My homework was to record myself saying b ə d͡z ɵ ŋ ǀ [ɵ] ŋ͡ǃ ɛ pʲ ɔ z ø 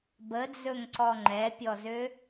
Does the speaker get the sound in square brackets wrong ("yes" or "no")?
yes